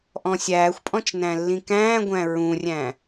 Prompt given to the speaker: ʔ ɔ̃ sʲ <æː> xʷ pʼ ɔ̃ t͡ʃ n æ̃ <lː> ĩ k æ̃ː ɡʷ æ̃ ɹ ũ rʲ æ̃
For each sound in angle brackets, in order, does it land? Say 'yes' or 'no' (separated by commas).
yes, yes